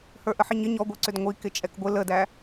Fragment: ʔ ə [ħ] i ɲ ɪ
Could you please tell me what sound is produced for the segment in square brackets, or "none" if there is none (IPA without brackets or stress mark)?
ħ